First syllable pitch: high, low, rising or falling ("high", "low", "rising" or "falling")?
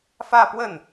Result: falling